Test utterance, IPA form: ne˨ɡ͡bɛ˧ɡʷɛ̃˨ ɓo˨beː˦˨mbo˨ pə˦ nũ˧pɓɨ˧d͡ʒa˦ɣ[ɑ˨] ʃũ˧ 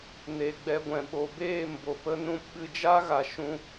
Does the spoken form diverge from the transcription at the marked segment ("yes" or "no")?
yes